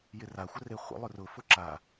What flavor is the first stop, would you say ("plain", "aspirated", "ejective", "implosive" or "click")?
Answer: click